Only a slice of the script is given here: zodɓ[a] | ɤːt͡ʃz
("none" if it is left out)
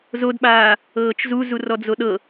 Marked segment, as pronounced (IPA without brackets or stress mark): aː